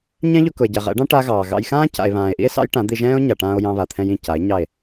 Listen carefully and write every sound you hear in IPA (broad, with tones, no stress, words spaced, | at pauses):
ɲɛ̃˦ʎʊ˧ kʊ˨e̯ɟɛ˨ʁɛ̰˨˦ɖɑ̃˦ ʈa˦ɣɑː˨ ɣɑ̰˧jxãː˦ ca̰˨e̯βãː˨e̯ʔḭ˦e̯ sɑ̰˦jʈã˨˦d̪i˧ʒɛ̃ː˦o̯ ɲa˨ʈãː˧o̯ jɑ̃˧βa˨t̪ʰɛ̃˧jĩ˦˨ ca˨˦e̯ɲɑ˦˨e̯